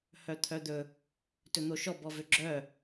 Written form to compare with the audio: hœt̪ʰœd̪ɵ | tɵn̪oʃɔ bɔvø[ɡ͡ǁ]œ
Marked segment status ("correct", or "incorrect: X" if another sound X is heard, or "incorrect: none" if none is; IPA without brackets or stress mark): correct